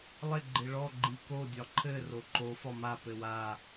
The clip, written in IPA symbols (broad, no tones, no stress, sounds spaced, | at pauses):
lˠ ɪ ɡ͡ǃ ɪ ɭ ɔ ɡ͡ǃ i k o dʲ ɒ ǃʰ ɘ r o ǃ o f ɒ m a p ɘ w a